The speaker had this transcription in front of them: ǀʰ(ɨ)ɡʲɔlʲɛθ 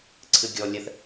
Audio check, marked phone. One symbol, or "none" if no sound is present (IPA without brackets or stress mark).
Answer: ɨ